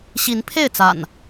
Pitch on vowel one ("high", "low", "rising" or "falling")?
rising